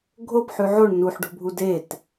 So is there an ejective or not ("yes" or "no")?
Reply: no